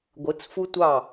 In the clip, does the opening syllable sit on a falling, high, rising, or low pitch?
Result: rising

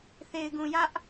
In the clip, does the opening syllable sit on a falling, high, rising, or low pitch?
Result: low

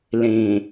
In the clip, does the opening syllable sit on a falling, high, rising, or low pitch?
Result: low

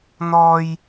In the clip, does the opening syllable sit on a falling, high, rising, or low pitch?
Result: high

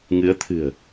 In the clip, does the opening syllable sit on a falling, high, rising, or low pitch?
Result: rising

